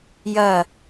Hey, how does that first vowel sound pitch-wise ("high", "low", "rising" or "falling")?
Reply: falling